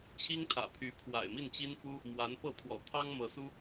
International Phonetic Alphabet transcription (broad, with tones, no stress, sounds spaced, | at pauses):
t͡ɕʰ i˥ ŋ t̪ʰ ä̰˨˩ pʰ y˧˥ pʰ w a̰˨˩ ɪ̯ m i˥˩ n t͡ɕ i˥ n f u˥ | m w a˧˥ n p ɤ˥˩ pʰ w ɔ̰˨˩ t̪ʰ ɑ˥ ŋ m ɤ˧˥ s u˥